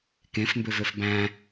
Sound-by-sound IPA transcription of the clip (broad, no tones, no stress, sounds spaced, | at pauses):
k ẽ f m b ø v ø f b æ̃